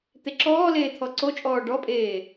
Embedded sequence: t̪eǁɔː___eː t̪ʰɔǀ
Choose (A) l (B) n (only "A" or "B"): A